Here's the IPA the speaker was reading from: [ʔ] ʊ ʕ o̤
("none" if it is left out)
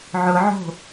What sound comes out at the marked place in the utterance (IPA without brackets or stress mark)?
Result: ʕ